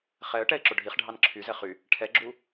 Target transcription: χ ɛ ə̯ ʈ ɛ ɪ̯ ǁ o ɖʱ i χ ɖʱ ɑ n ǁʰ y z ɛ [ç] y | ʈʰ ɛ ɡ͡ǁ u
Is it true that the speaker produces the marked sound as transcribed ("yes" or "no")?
no